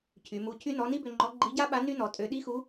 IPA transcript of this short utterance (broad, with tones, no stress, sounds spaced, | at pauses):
cʰ y˩˧ m u˧ cʰ y˥ n ɔ˧˥ n i˥ b ø˧ ŋ͡ǃ ɔ˧˥ ɡ͡ǃ i˧˥ ɟ a˥ ɓ a˧˥ n y˥ n ɔ˩˧ tʼ ø˧ ɗ i˥ x u˧˥